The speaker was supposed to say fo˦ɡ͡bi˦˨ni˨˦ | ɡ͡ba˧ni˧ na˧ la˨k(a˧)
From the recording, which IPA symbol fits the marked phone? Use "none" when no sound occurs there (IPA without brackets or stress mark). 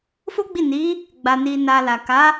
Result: a˨˦